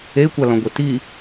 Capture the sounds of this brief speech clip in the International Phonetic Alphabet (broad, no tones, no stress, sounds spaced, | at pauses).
e kʷ a l ɔ̃ ɡʷ e t i